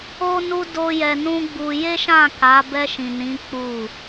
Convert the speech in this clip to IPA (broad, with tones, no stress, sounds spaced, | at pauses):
o˦ n u˦ d o˦ j ɛ˧ n ũ˦ ɡ͡b u˧ j e˦ ʃ ã˦˨ k a˨˦ b ɛ˧ ʃ ĩ˨ n ĩ˨˦ k͡p u˦˨